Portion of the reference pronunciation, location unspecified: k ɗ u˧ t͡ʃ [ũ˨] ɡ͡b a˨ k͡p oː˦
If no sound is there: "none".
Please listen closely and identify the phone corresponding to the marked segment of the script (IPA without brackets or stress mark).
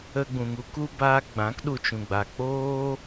ũ˨